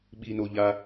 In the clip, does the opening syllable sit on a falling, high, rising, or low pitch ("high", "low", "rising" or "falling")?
low